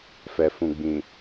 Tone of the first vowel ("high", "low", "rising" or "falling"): low